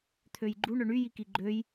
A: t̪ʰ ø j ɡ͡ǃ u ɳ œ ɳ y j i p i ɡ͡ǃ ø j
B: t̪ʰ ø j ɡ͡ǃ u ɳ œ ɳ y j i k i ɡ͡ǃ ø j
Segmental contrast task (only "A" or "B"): B